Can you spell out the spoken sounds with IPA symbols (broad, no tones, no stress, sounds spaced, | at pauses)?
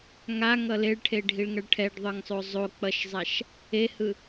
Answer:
ŋ a ŋ ʌ l e ɭ ʈʰ e ɖʱ i ɭ ŋ ʌ ɭ ʈʰ ɛ ɖ ðˤ ɯ ŋ sˤ o zˤ o k͡p ʌ ʃ zˤ a ʃ | e h ɯ